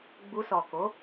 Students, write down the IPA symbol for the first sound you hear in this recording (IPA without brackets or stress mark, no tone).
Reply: ɡ͡b